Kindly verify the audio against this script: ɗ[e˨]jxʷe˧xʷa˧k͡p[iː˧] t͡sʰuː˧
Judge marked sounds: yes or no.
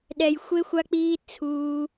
no, yes

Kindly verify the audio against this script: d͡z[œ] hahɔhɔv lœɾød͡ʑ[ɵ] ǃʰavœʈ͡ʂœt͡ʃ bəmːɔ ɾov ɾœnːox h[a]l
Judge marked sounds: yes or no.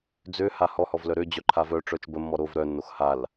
no, no, yes

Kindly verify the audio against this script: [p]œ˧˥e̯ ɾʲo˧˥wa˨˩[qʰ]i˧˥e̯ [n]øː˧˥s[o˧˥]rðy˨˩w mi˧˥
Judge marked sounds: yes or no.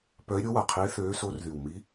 yes, yes, no, yes

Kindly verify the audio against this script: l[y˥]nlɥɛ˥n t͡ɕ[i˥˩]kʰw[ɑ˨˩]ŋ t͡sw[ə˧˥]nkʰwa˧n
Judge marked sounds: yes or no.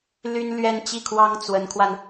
yes, yes, no, yes

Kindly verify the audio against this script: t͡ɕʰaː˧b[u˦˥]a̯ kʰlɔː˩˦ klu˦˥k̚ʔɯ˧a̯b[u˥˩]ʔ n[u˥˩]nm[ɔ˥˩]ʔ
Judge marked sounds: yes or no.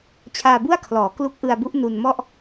no, no, no, yes

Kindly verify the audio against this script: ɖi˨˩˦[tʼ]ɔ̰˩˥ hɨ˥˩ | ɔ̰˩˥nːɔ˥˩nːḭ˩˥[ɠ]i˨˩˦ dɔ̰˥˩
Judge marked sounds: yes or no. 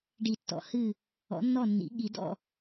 no, yes

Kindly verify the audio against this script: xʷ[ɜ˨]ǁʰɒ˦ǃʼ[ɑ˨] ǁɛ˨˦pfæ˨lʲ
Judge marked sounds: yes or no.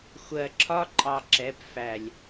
yes, yes

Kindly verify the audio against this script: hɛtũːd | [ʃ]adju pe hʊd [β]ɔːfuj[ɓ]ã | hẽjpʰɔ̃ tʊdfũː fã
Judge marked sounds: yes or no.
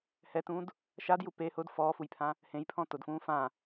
yes, no, no

